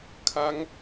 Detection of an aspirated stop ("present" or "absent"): present